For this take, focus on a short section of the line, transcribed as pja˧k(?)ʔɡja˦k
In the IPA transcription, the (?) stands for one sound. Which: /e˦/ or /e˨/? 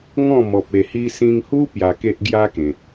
e˦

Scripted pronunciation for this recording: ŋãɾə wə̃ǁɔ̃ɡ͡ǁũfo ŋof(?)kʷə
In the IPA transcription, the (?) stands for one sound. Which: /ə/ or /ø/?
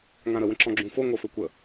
ø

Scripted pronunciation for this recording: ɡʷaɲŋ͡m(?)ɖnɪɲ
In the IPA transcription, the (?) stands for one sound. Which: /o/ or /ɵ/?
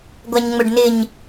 ɵ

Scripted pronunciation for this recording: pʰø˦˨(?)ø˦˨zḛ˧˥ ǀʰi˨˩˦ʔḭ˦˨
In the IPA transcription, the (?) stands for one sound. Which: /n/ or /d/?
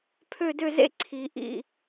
d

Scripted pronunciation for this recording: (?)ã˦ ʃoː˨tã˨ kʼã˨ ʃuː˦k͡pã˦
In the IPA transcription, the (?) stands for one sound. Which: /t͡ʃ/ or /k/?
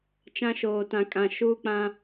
t͡ʃ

